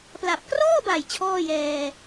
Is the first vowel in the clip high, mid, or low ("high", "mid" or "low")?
low